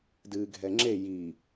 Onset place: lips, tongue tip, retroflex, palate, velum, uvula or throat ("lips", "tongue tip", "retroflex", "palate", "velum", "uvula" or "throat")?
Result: tongue tip